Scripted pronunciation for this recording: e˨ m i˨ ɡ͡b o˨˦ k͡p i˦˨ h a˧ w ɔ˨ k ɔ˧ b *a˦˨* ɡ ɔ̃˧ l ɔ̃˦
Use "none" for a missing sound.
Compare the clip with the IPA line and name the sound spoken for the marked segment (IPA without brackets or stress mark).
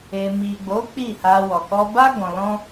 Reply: a˦